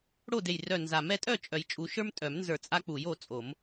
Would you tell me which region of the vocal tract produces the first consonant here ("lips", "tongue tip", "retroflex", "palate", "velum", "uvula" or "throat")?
retroflex